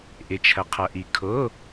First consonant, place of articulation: glottal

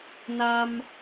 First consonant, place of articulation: alveolar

